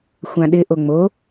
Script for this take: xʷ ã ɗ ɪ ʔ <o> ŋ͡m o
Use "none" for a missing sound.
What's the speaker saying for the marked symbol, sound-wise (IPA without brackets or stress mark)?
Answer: o